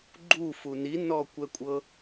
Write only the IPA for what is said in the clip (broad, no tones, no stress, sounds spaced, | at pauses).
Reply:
ɡ͡ǃ u f u n i n ɔ kʷ ɛ kʷʼ ɤ